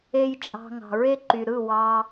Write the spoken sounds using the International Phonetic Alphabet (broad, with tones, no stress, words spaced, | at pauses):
e˦jt͡ʃʼɑ̤˧ ŋɑ̤˨ɹe˦ǃy˨ ɾɯ˦˨wɑ˧